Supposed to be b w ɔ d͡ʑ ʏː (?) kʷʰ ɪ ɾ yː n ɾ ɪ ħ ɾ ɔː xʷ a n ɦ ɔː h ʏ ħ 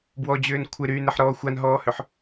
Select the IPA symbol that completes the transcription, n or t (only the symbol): n